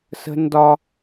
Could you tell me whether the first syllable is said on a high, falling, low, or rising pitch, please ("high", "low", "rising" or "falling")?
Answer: high